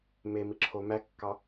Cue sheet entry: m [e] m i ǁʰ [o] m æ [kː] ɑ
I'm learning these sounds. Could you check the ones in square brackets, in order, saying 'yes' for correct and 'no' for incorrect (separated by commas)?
yes, yes, yes